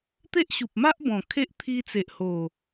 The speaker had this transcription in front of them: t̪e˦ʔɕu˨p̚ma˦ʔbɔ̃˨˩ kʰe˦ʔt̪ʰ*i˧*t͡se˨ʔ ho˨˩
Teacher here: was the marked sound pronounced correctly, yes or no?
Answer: yes